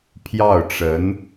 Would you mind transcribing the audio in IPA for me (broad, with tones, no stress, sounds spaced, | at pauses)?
pʰ j ɑ˥˩ ʊ̯ ʈ͡ʂ ə˧˥ n